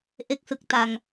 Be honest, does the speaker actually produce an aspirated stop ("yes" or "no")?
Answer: no